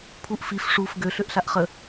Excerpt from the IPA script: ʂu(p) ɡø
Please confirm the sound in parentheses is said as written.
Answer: no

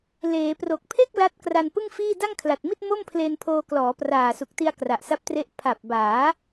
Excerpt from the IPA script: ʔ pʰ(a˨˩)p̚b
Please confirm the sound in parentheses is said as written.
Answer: yes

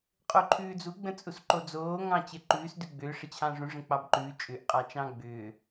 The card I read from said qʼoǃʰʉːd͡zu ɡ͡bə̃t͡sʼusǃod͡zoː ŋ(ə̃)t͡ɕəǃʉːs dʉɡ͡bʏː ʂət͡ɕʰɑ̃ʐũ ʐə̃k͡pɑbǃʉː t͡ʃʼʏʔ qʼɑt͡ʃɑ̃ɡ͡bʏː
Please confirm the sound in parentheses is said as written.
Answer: no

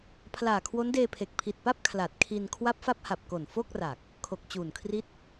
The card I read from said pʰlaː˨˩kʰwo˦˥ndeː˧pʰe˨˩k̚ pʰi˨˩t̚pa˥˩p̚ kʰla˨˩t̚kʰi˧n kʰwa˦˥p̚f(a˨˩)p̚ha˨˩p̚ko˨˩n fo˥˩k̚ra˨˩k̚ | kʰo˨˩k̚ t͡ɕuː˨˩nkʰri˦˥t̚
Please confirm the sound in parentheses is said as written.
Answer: no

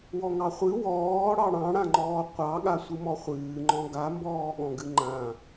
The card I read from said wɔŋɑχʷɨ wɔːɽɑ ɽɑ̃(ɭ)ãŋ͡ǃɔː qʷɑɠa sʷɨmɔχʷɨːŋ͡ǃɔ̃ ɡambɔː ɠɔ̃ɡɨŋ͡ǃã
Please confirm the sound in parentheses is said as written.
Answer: no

